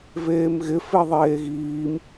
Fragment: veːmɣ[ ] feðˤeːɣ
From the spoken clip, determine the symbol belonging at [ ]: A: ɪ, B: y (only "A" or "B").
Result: A